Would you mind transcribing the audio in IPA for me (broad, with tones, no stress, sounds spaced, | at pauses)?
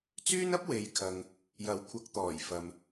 t͡s yː˥ n ɐ˥ p̚ w e˨˧ j kʰ ɐ˨ ŋ | j ɐ˨˥ w kʷʰ ɐ˨˥ k̚ t̪ ɔː˨˩ j f ɐ˨ m